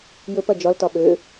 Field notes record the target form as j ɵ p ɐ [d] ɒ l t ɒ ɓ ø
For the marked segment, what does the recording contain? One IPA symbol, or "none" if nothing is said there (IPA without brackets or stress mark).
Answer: d͡ʒ